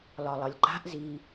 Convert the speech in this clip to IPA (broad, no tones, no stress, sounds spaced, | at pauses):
l ɒ lˠ ʌ lʲ ǃ a̤ ʔ z i